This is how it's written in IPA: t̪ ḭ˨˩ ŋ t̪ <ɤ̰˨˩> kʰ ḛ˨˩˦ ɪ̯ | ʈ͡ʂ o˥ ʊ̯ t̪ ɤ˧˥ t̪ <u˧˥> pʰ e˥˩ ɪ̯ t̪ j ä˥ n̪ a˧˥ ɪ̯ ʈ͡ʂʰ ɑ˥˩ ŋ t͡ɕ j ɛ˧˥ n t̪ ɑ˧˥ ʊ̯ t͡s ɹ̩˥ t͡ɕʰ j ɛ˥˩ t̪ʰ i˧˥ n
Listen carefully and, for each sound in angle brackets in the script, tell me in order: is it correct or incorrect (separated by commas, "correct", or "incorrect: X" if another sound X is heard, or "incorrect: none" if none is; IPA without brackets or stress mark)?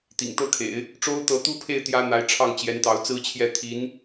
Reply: incorrect: ɤ˥˩, incorrect: u˥